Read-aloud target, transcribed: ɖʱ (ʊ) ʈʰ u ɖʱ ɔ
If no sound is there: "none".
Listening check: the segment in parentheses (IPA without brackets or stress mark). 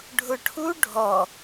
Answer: ʊ